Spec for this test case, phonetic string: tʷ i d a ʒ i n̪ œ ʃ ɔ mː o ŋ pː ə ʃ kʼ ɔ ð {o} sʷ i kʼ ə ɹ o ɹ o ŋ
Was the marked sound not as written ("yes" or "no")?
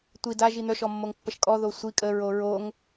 no